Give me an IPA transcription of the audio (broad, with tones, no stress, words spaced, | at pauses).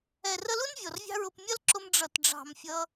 ɛ˨rə˧lu˦n vʲɔ˨rvʲɑ̤˦ɹʊ˧p mʲʌ˦lǁʊ˧m ɖ͡ʐʌ˨tɖ͡ʐɑ̤˨m fʲʌ˧